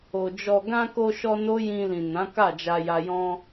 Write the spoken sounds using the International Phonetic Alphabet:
o˨ d͡ʒ ɔ˨ ɡ ã˧ k o˧ ʃ ɔ˧ n o˦ j ĩ˧ l ĩ˨ n ã˨˦ k a˦˨ d͡ʒ a˧ j a˧ j ɔ̃˧

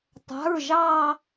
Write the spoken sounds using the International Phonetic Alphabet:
tˤ a̤˩˧˩ ɹ ʒ ɑ˧˩

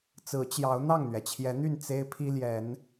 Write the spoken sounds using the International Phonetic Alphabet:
t͡s ɹ̩˨˦ t͡ɕ j ɑ˨˦ ʊ̯ n̪ ɑ˥˨ ŋ n̪ ɥ ɛ˩ t͡ɕʰ j ɛ˨˦ n̪ y˥˨ n t͡s e˦ ɪ̯ pʰ i˦ l j ɛ˨˦ n

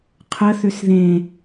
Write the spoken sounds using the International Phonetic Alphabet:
qʰ ə θ ʏ s ð ẽ

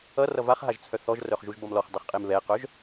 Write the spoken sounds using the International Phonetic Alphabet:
ʌ r ʌ v a χ ɦ a ʒ t͡sʰ œ θ ɔ ʒ r œ χ ʒ u ʒ b ʌ m l ɔ χ dˤ ʌ χ qʼ e m β ɛ q œ ʒ

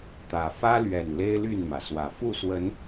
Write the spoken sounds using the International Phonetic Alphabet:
t̪ ä˨˩ f ä˦ l ɥ ɛ˨˩ n l e˦ ɪ̯ l y˥˨ n m ä˩ s w ä˨˩ f u˥˨ s w ə˨˦ n

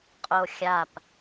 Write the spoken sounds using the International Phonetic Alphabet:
qʼ o xʲ a p

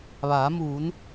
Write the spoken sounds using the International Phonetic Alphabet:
ʋ aː˩˧ m uː˩˧ n

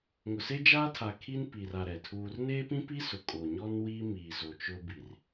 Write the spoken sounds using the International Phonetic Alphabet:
ŋ ʊ˨ s e˦ d͡ʒ aː˦ tʰ a˨ kʰ i˦ n p i˨ r a˨ ɾ ɛ˨ tʰ uː˦ r n eː˦ p ĩ˦ p i˦ s ʊ˨ kʼ o˨ ɲ ɔ˦ n w iː˦ m iː˨ z o˨ t͡ʃ ʊ˦ b i˨ r

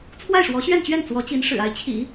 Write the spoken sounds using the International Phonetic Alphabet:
t͡sʰ w a˥˩ ɪ̯ ʂ w ɔ˧˥ ɕ ɥ ɛ˥˧ n t͡ɕ ɥ ɛ˥˩ n t͡s w ɔ˧˥ t͡ɕ i˧˥ n ʂ ɻ̩˨˩ a˥˩ ɪ̯ t͡ɕʰ ḭ˨˩˦

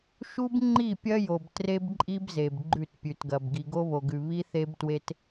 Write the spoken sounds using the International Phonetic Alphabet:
ʃ u˦ b ŋ͡ǃ i˦˨ pʲ ɐ˦ j o˨ b t r e˦ b ǃʼ i˦ b z e˨ b ɡ͡ǃ ʉ˦˨ t pʲ ʉ˨ t ɡ ɐ˨ b ɡ i˨ ɡ o˦ β o˨ ɡ ʉ˨ β i˦ θ e˦ b t w e˦ t

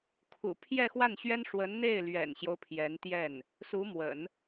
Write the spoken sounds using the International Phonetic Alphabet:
kʰ ṵ˨˩ pʰ j ɛ˥˧ x w a˥˩ n ɕ ɥ ɛ˥ n ʂ w ə˧˥ n n̪ e˥˩ ɪ̯ l ɥ ɛ̰˨˩ n ɕ j o˦ ʊ̯ pʰ j ɛ˧˥ n t̪ j ɛ˥˩ n | s u˧˥ m w ə̰˨˩˦ n

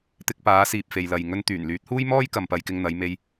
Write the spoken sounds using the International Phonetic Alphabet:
t̪ ɪ˧ k̚ p aː˨˥ s iː˨ p̚ f e˨ j l ɐ˨ j ŋ ɵ˧ n t̪ yː˨˩ n l yː˨˥ t̚ h uː˥ j m ɔː˥ j k ɐ˨ m p ɐ˧ j k ɪ˧ ŋ n̪ ɐ˨˧ j m e˧ j

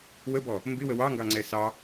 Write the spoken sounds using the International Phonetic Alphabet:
w ə b ɔ | m b ɪ w ə w ɑ ŋ ɡ ɑ ŋ͡ǀ ɛ s ɑ

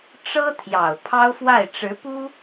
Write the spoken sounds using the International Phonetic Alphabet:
ʈ͡ʂ ɤ˥ t̪ʰ j ɑ˨˩ ʊ̯ pʰ ɑ˥ ʊ̯ f w a˥˩ ɪ̯ ʈ͡ʂ ɻ̩˧˥ p u˥

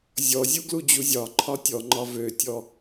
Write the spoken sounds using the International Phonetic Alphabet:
zʲ ɔ zʲ u ɡ l u d͡ʑ u zʲ ɒ ǃʰ ɒ tʲ ɔ ŋ͡ǃ ɒ v ø tʲ ɔ

